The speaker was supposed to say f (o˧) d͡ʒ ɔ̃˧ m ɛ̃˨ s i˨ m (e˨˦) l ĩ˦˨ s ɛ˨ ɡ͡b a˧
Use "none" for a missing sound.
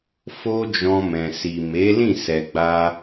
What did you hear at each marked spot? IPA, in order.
o˦, e˨˦

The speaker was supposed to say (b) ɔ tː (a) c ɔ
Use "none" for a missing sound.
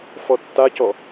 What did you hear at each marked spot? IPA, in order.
f, a

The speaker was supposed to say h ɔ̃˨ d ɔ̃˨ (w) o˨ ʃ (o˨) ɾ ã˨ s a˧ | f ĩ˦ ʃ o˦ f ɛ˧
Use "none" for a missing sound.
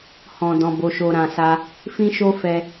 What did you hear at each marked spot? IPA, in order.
b, o˨

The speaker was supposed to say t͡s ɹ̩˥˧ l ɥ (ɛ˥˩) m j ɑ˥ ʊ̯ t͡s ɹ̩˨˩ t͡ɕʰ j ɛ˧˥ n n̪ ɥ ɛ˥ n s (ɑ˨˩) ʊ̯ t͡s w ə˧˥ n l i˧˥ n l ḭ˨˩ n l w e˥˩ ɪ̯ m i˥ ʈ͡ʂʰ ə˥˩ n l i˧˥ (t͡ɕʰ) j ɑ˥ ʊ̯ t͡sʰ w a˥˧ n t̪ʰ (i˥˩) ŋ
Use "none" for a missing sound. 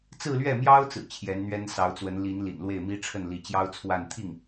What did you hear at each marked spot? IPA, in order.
ɛ˥˩, ɑ˧˥, t͡ɕ, i˥˩

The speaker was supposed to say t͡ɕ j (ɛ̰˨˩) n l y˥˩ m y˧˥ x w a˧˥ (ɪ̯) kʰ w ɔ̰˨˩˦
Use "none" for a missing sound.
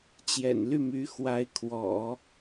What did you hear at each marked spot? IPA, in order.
ɛ̰˨˩, ɪ̯

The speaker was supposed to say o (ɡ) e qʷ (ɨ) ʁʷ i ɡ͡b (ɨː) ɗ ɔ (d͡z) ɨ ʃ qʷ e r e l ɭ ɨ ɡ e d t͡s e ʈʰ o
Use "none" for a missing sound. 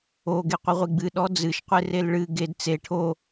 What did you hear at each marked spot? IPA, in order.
ɡ, ɨ, ɨ, d͡z

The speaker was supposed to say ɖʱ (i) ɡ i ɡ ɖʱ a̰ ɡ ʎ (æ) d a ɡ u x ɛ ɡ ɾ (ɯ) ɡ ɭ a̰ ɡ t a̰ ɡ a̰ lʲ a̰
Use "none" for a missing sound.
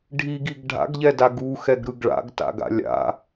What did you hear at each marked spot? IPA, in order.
i, ɛ, ɯ

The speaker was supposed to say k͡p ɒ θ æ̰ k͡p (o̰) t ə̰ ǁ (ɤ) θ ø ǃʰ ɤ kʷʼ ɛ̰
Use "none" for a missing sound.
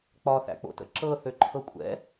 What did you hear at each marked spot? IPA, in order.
o̰, ɤ

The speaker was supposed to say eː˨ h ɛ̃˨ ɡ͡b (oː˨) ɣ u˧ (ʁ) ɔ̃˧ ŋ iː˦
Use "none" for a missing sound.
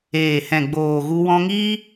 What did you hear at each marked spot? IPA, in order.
oː˨, w

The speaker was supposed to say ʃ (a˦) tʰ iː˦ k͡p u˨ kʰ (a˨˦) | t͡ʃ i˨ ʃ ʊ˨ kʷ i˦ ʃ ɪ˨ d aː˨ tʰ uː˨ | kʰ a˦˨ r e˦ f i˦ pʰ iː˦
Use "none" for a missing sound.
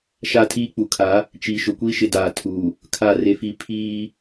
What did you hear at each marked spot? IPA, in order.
a˦, a˨˦

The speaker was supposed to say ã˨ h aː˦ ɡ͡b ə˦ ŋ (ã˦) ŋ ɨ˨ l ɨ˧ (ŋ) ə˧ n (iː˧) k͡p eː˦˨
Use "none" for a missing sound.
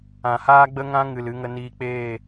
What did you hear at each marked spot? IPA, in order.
ã˦, ŋ, iː˧

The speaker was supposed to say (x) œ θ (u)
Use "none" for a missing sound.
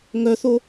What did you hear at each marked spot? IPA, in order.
ŋ, o

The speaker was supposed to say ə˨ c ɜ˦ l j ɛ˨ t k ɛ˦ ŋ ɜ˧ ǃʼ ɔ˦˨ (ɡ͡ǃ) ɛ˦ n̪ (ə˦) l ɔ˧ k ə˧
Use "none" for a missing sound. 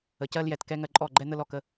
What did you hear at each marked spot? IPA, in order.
ɡ͡ǃ, ə˦

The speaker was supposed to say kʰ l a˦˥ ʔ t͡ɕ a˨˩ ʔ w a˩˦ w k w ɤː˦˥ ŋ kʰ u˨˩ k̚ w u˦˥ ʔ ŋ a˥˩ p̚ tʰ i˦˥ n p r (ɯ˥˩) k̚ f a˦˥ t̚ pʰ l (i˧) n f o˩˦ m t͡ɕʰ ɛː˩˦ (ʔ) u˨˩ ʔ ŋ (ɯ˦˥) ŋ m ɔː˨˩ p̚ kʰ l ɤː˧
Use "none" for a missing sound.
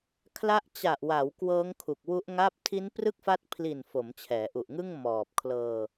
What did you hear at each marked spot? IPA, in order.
ɯ˥˩, i˨˩, ʔ, ɯ˥˩

